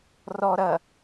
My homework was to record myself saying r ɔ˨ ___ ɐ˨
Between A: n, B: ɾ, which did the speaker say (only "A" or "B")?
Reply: B